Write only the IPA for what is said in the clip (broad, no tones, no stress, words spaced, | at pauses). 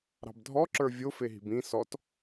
ɾɑ̤bdʱɔǁə˞ vʲofeɦi̤b ĩ sɔt